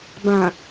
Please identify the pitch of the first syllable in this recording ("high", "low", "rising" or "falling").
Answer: low